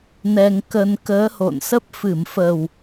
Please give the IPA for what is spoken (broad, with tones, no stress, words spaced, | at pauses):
nɛ˧ŋkə˧n kəː˨˦ho̰˧˨nsə˦˥p̚ fɨ˧˩mfə˨˩w